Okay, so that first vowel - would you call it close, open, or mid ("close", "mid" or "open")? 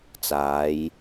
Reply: open